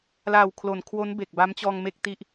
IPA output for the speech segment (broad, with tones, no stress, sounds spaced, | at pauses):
l a˨˩ w kʰ l o˩˦ n kʰ w o˦˥ n b e˨˩ k̚ b a˦˥ m t͡ɕ ɔː˧ ŋ m e˥˩ k̚ t i˥˩ ʔ